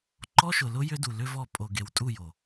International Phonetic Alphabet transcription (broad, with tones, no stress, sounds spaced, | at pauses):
ǃ ɔ˦ ʃ ʊ˨ l ʊ˦ j ʏ˦ d u˨ l ʏ˦ v ɔ˦˨ pʼ o˨ ɡ e˨ w tʼ u˦˨ j o˨